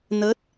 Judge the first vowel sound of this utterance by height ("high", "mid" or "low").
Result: mid